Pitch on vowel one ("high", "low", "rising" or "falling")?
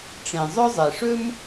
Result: low